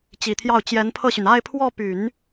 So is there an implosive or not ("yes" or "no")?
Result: no